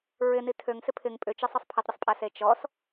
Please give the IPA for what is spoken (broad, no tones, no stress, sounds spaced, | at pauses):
ɹ ɪ n i tʰ ø ŋ s ɪ pʰ ɪ ŋ pʼ ʏ t͡ʃ ə sˤ ə sˤ pʰ ɪ tˤ ɾʲ ə sˤ pʼ a s e t͡ʃ ɔ s